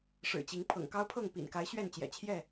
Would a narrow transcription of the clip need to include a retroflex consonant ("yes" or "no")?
yes